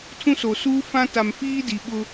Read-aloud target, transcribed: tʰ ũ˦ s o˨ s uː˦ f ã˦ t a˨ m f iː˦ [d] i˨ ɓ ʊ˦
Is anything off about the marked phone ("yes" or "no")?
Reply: no